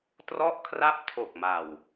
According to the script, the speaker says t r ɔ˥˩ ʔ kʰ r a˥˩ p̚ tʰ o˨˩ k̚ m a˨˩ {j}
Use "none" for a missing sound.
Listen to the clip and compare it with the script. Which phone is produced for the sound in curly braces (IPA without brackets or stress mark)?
w